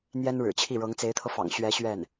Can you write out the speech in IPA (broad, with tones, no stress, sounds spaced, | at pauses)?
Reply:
n̪ j ɛ˥ n ɻ ɻ̩˨˩ t͡ɕʰ i˥˩ ɻ ɤ˧˥ ŋ t͡s e˧˥ ɪ̯ t̪ʰ ɤ˧ f ɑ̰˨˩ ŋ ɕ ɥ ɛ˧˥ ɕ ɥ ɛ˥˩ n